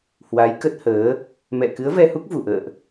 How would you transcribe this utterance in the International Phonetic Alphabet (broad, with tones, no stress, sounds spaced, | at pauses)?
h w a˨˦ j k ə˦˥ t̚ h əː˨˦ | m ɛ̰˧˨ k ɨ˨˦ ə̯ v ɛ˧ h u˦˥ k̚ v u˧˩ ʔ ə̰ː˧˨ ʔ